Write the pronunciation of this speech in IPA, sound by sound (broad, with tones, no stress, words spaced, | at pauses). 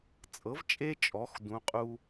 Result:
t͡sʼɤ˩˥vt͡ʃʼe˦t͡ʃʼɔ˩˧x dũ˩˧qʼu˦